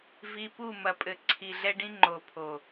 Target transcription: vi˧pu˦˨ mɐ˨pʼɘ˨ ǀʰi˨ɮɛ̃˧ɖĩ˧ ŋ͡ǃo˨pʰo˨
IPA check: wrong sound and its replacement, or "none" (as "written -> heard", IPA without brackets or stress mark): ɛ̃˧ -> ɛ˧